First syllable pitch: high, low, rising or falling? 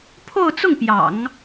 falling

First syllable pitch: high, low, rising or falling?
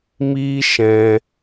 high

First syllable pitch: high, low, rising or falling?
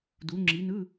rising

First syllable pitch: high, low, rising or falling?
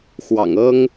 low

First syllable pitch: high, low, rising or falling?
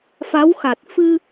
rising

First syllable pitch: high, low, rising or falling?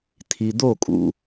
low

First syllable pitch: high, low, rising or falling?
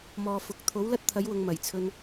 low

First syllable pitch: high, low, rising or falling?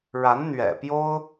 rising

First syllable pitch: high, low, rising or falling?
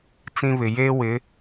high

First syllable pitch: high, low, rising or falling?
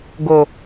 low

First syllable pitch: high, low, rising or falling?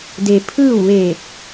low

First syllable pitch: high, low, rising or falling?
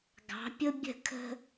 rising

